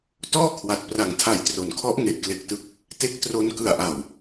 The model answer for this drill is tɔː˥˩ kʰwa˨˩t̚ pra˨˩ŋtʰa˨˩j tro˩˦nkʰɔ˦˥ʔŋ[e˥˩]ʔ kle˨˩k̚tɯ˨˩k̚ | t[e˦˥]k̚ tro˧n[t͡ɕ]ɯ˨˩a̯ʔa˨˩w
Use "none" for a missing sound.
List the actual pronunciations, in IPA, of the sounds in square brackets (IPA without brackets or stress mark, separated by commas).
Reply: e˨˩, e˦˥, k